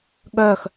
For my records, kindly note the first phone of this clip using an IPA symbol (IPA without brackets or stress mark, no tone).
ɠ